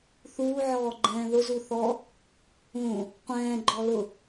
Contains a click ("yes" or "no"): yes